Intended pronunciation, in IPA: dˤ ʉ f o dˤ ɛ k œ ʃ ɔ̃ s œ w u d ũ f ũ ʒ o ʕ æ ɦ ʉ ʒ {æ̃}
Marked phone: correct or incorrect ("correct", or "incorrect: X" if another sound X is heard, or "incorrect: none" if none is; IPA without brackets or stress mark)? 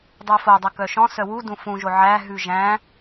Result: correct